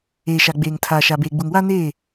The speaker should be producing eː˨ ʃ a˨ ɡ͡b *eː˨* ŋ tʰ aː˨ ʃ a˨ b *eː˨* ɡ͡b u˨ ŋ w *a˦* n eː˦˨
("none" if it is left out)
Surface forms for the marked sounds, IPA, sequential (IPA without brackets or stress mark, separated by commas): eː˨, eː˨, a˦